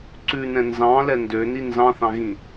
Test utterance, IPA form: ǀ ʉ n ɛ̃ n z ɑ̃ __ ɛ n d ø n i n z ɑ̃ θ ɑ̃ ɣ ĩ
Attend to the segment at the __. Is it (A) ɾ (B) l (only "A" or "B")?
B